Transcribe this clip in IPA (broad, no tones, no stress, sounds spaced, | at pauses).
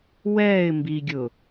w ɛː ɪ̯ m b i ɡʲ ʊ